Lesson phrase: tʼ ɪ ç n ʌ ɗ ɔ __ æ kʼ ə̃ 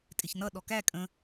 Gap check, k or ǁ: k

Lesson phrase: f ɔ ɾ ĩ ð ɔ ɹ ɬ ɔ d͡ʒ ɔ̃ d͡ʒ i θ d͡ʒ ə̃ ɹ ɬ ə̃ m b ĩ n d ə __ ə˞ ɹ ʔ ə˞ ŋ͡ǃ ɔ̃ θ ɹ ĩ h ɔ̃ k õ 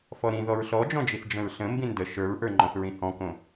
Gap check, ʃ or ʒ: ʃ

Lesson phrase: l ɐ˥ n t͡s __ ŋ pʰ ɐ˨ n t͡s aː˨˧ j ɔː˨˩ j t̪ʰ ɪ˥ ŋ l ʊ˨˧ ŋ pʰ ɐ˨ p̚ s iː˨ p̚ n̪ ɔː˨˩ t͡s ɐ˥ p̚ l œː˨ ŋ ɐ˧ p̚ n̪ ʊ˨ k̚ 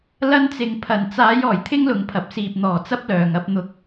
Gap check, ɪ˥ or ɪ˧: ɪ˧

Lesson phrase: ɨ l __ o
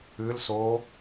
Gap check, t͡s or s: s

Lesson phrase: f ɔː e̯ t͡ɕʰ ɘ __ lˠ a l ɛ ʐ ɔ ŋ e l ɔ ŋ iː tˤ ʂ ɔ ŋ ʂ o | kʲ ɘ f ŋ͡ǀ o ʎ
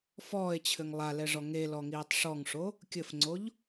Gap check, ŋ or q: ŋ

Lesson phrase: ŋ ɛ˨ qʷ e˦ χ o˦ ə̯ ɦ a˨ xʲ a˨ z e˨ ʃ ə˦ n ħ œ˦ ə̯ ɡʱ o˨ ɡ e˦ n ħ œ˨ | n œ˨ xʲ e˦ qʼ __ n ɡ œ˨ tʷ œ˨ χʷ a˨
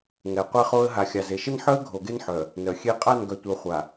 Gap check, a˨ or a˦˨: a˦˨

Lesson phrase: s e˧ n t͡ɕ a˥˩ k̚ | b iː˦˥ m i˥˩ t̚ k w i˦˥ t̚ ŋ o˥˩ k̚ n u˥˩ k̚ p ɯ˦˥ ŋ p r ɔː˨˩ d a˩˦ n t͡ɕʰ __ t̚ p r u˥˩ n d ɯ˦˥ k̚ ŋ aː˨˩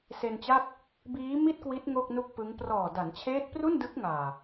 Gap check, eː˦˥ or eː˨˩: eː˦˥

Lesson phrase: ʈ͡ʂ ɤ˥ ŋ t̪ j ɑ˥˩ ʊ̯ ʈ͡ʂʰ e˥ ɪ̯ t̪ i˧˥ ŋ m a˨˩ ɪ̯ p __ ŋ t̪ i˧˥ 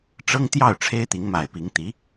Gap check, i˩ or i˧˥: i˧˥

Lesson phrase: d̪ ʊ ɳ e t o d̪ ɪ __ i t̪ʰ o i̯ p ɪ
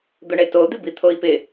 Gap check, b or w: b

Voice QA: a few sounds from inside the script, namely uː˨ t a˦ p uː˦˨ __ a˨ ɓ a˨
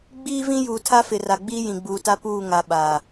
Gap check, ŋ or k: ŋ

